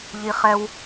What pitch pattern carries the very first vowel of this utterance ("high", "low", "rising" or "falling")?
high